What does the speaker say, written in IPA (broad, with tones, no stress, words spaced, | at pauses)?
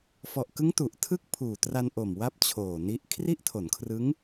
fɔ˨˩ʔkɯ˦˥ŋ tu˨˩ʔtʰɯ˥˩k̚ pʰuː˨˩tra˧nʔo˨˩mwa˦˥p̚ t͡ɕʰoː˨˩ni˦˥ʔ kʰri˥˩ʔtʰo˩˦nkʰrɯ˦˥ŋ